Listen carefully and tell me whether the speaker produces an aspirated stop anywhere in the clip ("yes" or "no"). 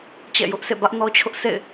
yes